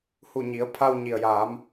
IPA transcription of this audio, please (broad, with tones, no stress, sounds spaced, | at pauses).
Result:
h u˧˩ ɲ i˩˧ ə̯ pʰ a˧ w ɲ i˩ ə̯ j aː˩˧ m